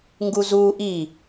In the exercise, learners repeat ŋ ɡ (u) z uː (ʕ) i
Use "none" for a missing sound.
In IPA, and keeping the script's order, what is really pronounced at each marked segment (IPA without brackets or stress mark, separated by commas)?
u, ʔ